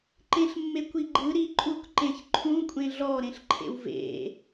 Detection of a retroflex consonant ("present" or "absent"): absent